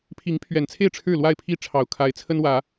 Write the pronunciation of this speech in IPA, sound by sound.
pʰi˨˦ŋpʰɥɛ˨˩nt͡sʰe˥˨ɪ̯ ʈ͡ʂʰɻ̩˥˨ lwa˥˨ɪ̯pʰi˥˨ ʈ͡ʂʰɑ˨˩ʊ̯kʰa˨˦ɪ̯ t͡sʰə˦nwä˨˦

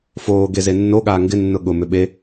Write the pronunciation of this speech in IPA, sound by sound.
foːɡe zenːoɠaː ŋɡɪ nːʊɠʊmʏ ɓe

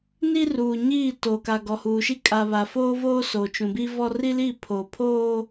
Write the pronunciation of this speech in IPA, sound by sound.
ni˦ruː˨ ɲiː˦˨ toː˨ka˨ɡɔ˨ huː˨ʃi˦ kʼa˨ βa˨foː˦voː˦ so˨t͡ʃũ˨bi˦vɔ˦ ri˦li˦˨pʰoː˨ pʰoː˦

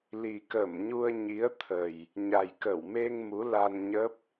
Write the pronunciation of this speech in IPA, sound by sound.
li˨˩kə˧˩mɲu˧ə̯ ɲi˨˦ə̯t̪ʰə˨˩j | ɲa˨˩jkə˧˩wme˧ŋ mu˨˦la˧nɲə˦˥p̚

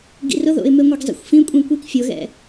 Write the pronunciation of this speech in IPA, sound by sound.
ɡḭrʊðo̰ɪ̯me ŋʷeɡzˤḭxʷfĩ kʷʼĩkʷik fʲʊɣɛ̰

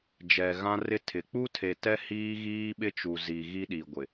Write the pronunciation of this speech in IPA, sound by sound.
d͡ʒɛ˨ɣã˦rɪ˦tʰɪ˨ k͡pu˦tʰe˨ tɛ˦ hiː˦ ɣiː˦ɓɪ˦t͡ʃu˨ zi˨ ɣi˦ɗi˨ɡʷɪ˨

